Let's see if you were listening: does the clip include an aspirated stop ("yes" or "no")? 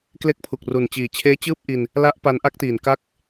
yes